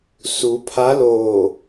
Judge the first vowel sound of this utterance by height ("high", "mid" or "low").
high